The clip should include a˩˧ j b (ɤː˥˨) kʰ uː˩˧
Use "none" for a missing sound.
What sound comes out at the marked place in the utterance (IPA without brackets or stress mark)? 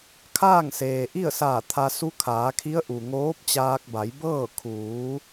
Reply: ɤː˥˨